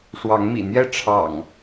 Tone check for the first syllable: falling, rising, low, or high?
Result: rising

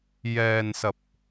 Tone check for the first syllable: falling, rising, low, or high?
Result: low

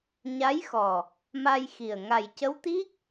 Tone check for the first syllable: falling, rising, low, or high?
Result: rising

